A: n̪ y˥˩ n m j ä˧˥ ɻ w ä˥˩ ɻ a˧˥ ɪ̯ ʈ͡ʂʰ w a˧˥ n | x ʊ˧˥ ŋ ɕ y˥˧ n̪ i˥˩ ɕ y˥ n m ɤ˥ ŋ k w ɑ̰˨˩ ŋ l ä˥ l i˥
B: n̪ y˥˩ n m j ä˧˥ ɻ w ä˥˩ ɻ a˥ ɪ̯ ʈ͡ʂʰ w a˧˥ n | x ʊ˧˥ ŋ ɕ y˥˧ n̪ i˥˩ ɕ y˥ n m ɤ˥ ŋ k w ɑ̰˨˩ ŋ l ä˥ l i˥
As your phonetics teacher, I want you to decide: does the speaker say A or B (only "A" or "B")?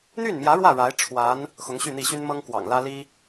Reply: A